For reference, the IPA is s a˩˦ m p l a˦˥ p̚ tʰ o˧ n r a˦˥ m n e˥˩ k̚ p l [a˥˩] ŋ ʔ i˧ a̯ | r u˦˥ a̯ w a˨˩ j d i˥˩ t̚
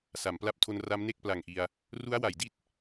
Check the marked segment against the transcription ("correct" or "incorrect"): incorrect